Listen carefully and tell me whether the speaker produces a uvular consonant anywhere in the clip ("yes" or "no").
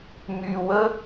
no